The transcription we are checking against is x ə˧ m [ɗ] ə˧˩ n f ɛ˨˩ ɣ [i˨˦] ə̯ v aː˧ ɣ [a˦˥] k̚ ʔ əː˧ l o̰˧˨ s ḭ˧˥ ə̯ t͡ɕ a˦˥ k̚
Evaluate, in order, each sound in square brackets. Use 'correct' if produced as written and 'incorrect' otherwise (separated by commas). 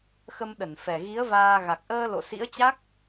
correct, correct, incorrect